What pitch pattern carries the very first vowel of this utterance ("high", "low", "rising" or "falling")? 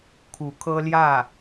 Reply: rising